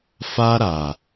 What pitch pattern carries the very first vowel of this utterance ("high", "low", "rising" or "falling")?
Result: high